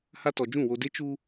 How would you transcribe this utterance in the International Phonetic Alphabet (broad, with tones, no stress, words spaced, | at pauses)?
ha˦tɔ˨ d͡ʒũ˦˨ wo˨de˦ t͡ʃu˦